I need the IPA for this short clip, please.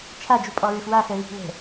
t͡ʃʰ a d͡ʒ u pʼ ɔ ɹ ɘ f w a f ɛ β i̤ l ɛ̤

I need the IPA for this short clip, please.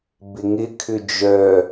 b ɪ ŋ ɪ kʰ ʏ d͡ʒ œ

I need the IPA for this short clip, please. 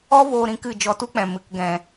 ɔ˦ v oː˧ ɾ ĩ˧ k ɨ˦˨ d͡ʒ ɔ˧ t u˦ k͡p ɛ̃˨ m ɨ˨ k ɡ ɛ̃˨

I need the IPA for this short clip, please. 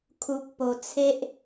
kʰ u˨ k̚ p o˨˩ t͡sʰ e˦ ʔ

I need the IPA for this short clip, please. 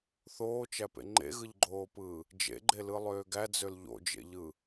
θ oː t͡ʃ æ p ḛ ŋ͡ǃ ḛ ɣ ɯ ʎ ɡ͡ǃ oː p ɯː | d͡ʒ ḛ ɡ͡ǃ e l ɯ lˠ øː ɡ æ d͡z ø l ʎ o̰ d͡ʒ ḛ ʎ ɯ

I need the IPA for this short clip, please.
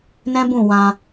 n ɛ̃˦ b ũ˦˨ w ã˧

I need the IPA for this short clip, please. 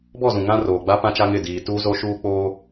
b ɔ˦˨ z ũ˨ ŋ ã˦ r oː˨ ɡ͡b a˦ p ã˦ t͡ʃ a˦ ŋ ɪ˦˨ d iː˨ t uː˦ z o˦ ʃ uː˦ k͡p oː˦

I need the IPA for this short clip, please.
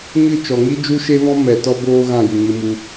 ɲ ɨ˦˨ t͡ʃ ɔ˨ ŋ i˦ d͡ʒ u˦ ʃ e˦ v ɔ̃˦ m ɛ˨ t ɔ˦ b oː˦ ɣ ã˦˨ j u˨ ɲ ɨ˧ m u˧

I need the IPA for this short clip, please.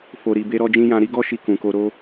f o˨ ɾ i˨ b e˧ ɾ ɔ˦ d͡ʒ ĩ˦ j ã˧ ɾ i˦ ɡ ɔ˦ ʃ i˧ k ũ˨ k o˧ ɾ o˦

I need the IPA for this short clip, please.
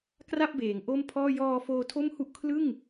k r a˥˩ p̚ b eː˩˦ ŋ ʔ o˥˩ m pʰ ɔː˥˩ j ɔː˧ f oː˧ tʰ o˥˩ m h u˥˩ ʔ kʰ l ɯ˥˩ ŋ

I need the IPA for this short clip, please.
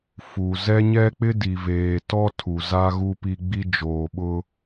f u˨ z ɛ˦ ɲ ɛ˦ k͡p ɪ˦ d i˨ v eː˨ t ɔ˦ tʰ u˨ z a˦ ɣ u˦ p i˦ ɡ͡b i˦ d͡ʒ oː˨ ɓ ʊ˦

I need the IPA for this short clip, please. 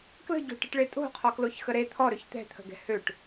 k l ə̤ ɟ o̤ ʈ ə̤ ʈ ɭ e tʼ o̤ qʰ ɔ k l o ç x ə ɾ e t̪ʰ ɔ ɾ ø ç t̪ ɛ̤ t̪ʰ ə̤ ɡ ɛ̤ h ø ʈ

